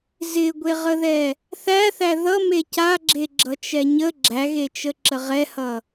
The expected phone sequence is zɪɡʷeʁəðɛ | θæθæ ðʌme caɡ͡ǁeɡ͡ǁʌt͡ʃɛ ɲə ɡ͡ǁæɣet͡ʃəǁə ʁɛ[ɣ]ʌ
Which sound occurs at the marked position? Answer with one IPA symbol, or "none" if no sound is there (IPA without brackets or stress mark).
h